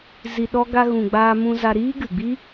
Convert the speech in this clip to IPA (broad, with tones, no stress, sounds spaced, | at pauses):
z i˧ ɗ ɔ˦ ɡ a˧ ɣ ũ˨ ɡ͡b aː˧ m ũ˧ z a˧ ɾ iː˦ ɡ ɨ˨ ɡ͡b i˦